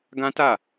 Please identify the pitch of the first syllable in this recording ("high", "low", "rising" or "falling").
high